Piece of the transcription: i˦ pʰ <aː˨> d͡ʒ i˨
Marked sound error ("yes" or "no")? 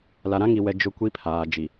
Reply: no